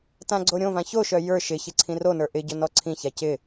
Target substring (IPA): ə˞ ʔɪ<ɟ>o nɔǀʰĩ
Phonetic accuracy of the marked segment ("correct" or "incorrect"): correct